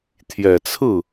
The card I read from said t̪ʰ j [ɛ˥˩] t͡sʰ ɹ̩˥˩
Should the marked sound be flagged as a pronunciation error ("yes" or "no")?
yes